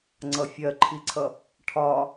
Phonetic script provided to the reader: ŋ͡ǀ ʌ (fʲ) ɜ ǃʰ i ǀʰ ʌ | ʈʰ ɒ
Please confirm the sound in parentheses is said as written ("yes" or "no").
yes